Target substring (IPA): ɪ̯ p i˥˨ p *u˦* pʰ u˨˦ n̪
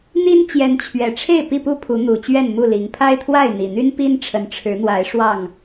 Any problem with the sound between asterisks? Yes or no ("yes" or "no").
yes